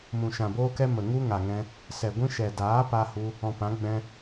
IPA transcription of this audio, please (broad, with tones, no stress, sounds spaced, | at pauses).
m ũ˨ ʃ ã˨ b oː˦ k ɛ˦ m ə˨ ŋ u˦ ŋ a˨ ŋ ɛ̃˧ | s ɛ˨ ɡʷ ĩ˦ ʃ ɛ˨ d aː˨˦ p a˧ h u˧ | ɔ̃˨ p ã˨˦ ɡ͡b ɛ̃˦